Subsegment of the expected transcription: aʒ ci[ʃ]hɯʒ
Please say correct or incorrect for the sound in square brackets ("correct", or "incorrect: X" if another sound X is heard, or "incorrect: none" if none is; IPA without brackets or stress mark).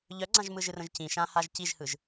incorrect: ʒ